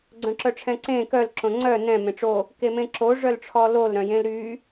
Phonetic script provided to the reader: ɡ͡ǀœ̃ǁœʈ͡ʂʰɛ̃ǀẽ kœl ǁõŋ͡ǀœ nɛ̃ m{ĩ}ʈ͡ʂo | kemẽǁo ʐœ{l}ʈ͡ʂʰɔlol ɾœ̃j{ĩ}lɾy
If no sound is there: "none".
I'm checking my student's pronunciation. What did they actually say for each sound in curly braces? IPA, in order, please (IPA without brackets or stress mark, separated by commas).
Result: ẽ, l, ẽ